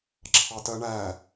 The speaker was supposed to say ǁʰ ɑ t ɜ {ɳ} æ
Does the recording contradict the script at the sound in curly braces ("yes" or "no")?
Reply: no